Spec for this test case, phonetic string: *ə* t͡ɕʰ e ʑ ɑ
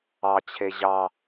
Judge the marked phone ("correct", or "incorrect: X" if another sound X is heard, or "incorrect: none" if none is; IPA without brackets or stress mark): incorrect: ɑ